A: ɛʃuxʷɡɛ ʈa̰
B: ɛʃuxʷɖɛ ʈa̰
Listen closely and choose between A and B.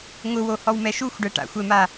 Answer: B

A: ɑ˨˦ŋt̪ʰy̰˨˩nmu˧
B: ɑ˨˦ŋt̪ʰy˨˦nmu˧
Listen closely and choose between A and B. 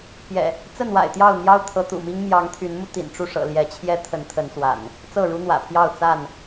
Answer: B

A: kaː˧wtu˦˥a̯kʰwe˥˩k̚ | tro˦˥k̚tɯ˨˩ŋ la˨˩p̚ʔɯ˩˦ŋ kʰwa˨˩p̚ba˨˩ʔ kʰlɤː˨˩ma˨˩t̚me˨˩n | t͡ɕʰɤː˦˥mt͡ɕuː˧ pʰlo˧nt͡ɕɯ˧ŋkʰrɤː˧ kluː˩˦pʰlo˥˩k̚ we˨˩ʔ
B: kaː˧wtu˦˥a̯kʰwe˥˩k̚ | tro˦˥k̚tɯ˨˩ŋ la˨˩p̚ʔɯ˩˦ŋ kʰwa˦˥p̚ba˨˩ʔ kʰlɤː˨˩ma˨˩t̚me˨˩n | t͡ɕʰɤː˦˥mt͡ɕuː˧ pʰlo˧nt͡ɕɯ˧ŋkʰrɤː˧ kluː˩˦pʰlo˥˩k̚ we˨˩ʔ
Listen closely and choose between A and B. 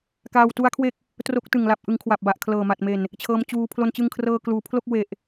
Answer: A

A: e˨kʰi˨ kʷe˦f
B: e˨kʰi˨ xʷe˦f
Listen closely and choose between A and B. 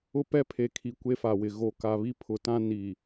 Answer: A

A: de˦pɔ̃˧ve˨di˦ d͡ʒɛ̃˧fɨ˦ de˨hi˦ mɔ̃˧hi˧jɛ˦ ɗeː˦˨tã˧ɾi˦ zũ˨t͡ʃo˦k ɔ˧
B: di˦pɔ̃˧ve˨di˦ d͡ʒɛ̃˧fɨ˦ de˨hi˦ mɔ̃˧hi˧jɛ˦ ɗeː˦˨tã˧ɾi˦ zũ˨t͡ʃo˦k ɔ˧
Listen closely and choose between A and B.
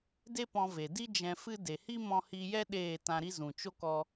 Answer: A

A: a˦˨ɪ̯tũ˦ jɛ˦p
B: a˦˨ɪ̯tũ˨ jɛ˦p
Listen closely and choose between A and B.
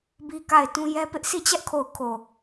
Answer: A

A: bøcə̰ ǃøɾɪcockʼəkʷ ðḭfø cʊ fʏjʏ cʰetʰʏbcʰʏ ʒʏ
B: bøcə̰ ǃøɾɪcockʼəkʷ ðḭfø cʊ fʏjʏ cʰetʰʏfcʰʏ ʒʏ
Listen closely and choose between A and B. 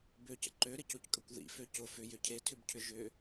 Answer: A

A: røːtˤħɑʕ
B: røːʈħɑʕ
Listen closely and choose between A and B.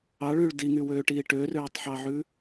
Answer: A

